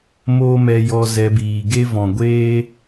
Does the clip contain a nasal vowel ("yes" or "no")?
yes